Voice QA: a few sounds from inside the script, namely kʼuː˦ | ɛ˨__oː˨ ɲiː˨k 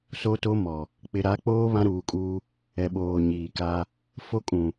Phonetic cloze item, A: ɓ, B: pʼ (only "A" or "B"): A